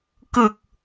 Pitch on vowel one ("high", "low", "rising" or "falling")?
low